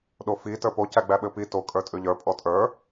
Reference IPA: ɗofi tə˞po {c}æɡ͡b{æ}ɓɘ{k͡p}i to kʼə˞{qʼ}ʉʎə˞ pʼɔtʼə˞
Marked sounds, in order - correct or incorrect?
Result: correct, correct, incorrect, incorrect

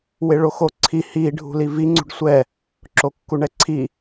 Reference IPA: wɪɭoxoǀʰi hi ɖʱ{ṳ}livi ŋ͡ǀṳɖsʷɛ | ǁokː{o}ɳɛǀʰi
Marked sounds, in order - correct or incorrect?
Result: correct, incorrect

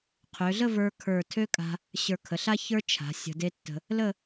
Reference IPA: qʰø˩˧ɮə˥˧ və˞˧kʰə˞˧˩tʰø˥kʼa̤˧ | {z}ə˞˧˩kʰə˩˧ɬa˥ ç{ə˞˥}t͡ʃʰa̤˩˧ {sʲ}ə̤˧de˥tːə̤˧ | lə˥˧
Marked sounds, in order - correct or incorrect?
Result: incorrect, correct, correct

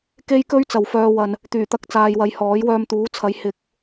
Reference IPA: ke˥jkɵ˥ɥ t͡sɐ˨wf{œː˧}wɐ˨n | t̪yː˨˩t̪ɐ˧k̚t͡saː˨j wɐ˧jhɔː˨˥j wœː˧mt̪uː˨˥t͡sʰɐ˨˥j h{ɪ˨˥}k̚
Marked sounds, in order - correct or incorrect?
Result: correct, correct

